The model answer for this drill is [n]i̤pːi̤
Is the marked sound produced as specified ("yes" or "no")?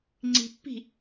no